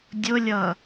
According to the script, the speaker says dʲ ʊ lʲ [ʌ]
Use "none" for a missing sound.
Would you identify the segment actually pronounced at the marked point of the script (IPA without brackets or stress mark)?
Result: ʌ